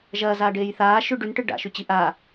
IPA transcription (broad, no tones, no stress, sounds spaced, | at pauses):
ʒ ɐː z aː ɖ eː j θ aː ʃ ʉ ɖ ʉ n ʈ ɨ ɖ a̰ ʃ ʉ t͡ɕ i ʔ a